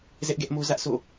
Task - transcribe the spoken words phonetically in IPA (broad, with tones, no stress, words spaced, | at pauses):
zɛ˦ʔɡɛ˦ʔmo˦zä˦ʔ sʰo̰˦˨